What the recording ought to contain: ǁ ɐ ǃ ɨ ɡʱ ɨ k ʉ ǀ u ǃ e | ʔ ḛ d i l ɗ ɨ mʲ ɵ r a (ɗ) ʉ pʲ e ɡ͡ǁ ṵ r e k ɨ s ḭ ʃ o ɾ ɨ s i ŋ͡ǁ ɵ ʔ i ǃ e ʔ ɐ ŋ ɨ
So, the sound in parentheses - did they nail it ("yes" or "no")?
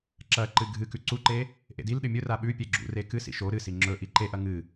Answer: no